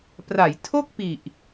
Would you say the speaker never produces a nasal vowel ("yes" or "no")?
yes